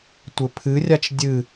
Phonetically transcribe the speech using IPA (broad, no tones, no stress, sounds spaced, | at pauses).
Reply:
tʷ ɘ pʰ ɨ rʲ a t͡ʃ dʲ ɨ